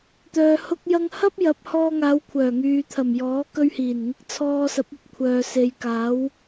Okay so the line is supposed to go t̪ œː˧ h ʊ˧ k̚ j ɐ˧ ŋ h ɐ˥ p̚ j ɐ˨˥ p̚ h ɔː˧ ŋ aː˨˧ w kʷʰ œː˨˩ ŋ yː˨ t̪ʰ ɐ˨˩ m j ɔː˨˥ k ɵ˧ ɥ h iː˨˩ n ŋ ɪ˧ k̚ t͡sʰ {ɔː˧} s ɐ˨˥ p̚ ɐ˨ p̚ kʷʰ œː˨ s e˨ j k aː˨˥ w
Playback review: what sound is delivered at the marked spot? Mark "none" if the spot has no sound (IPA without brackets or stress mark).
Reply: ɔː˧